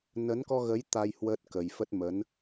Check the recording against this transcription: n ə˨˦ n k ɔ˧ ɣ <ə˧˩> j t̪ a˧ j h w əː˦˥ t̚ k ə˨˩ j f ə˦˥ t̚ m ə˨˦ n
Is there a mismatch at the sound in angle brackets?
yes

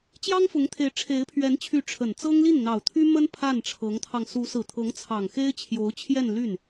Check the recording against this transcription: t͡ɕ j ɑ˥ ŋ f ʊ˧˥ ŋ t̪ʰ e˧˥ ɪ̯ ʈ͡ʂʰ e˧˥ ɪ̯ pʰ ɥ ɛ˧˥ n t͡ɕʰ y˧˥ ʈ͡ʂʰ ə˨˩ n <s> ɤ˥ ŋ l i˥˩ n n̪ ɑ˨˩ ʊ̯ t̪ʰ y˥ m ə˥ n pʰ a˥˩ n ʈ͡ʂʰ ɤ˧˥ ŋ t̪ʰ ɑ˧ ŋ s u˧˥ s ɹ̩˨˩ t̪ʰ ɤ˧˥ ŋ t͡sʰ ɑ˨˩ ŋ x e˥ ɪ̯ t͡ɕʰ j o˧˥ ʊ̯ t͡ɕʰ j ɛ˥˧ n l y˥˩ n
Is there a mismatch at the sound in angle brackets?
yes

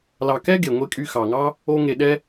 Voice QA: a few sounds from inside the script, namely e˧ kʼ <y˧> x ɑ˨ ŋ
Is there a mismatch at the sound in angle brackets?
no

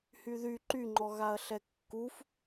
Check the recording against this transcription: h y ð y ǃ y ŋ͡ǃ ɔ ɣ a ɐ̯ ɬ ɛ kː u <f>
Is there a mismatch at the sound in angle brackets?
no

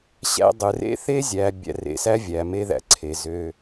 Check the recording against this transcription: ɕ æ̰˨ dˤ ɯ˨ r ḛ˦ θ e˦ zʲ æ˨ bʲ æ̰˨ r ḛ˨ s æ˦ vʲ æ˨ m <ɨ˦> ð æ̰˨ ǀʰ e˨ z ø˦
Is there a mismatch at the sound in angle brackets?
yes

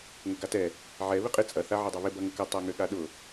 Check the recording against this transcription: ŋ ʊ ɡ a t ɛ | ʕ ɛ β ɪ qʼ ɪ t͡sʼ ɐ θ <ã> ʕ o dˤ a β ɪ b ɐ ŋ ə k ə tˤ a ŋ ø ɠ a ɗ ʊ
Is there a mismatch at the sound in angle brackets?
yes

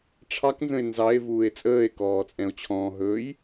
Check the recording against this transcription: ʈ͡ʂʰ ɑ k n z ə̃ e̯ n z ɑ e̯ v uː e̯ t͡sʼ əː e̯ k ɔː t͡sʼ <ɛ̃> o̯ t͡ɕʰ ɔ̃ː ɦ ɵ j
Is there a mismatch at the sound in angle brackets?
no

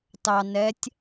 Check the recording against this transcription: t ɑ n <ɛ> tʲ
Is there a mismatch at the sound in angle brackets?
no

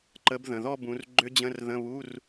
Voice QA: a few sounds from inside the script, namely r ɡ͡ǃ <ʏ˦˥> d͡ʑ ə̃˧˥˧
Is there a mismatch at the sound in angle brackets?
no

